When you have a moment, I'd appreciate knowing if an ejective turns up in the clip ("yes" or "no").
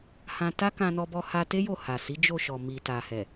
no